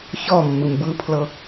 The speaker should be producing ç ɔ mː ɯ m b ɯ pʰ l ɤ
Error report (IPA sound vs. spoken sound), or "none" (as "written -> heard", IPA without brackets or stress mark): none